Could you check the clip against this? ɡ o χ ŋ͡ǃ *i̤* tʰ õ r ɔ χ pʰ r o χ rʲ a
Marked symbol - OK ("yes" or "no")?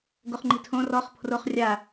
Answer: yes